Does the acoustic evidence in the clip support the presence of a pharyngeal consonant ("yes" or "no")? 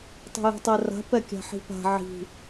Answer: yes